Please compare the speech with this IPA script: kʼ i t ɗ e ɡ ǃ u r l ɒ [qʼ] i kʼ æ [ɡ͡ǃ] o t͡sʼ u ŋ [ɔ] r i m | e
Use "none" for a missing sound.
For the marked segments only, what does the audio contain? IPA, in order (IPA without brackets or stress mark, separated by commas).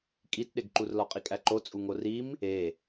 qʼ, ǃ, o